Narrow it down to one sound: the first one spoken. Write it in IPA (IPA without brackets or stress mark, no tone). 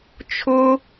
t͡ʃʰ